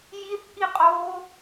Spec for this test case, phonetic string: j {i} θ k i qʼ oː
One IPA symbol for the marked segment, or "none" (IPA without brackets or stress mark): i